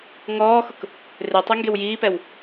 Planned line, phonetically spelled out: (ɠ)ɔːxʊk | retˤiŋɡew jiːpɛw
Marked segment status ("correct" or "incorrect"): incorrect